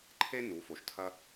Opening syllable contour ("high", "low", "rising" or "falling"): high